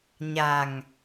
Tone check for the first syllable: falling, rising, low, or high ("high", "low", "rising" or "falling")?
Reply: low